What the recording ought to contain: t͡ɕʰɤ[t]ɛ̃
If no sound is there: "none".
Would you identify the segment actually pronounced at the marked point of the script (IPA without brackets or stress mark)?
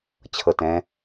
t